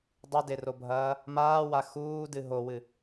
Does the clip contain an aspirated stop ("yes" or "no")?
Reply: no